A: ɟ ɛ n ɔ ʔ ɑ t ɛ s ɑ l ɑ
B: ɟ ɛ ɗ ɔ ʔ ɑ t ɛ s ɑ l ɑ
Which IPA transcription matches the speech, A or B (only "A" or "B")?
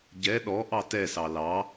B